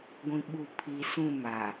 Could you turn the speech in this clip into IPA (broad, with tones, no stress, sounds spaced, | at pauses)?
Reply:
ɡʷ ĩ˨ ɓ u˨ pʰ i˨ s ũ˦˨ m a˨